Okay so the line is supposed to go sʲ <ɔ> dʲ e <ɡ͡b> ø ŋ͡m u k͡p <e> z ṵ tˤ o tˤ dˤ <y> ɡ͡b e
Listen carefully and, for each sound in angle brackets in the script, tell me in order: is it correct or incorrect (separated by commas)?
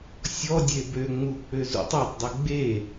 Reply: correct, incorrect, incorrect, incorrect